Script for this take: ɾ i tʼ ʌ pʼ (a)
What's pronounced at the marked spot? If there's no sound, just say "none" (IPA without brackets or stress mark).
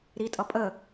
ə